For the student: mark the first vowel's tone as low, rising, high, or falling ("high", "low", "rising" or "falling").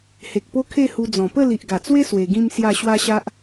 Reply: low